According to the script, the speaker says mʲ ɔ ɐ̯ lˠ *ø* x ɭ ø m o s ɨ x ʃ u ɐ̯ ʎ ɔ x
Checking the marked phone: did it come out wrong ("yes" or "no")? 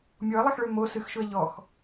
yes